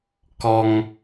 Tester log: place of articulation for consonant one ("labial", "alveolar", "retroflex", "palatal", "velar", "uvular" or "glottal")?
velar